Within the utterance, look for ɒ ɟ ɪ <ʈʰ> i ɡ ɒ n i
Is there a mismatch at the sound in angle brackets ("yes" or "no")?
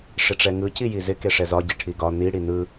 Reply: no